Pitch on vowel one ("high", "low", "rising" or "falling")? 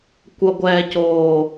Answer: low